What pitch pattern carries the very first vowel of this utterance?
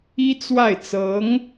high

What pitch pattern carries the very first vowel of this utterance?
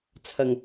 low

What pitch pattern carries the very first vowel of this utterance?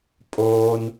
high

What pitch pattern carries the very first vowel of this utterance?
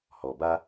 low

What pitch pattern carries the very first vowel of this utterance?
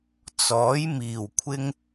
rising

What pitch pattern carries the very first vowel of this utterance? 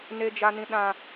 high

